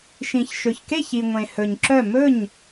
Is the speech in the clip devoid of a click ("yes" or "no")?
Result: no